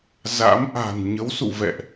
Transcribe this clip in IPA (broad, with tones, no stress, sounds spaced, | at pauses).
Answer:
z a̰˧˥ m ʔ a̤˨˩ n ɲ ə˨˦ w s ṵ˧˨ v ɛ̰˧˨ ʔ